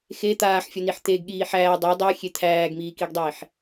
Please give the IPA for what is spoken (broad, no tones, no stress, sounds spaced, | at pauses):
x e t̪ aː ħ fʲ ɔ n i ħ t̪ e ɡ ɠ iː ħ æː dˤ e dˤ æ xʲ e t̪ʰ æː ɡ m iː k i ɡ dˤ iː ħ